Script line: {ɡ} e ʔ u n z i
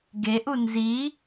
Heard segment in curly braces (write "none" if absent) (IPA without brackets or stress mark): ɡ